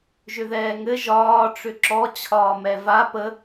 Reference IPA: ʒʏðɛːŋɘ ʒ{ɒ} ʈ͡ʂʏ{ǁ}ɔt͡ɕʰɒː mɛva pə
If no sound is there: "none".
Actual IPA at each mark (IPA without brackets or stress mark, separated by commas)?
ɒː, ǁ